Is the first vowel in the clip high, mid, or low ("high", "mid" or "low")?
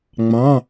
low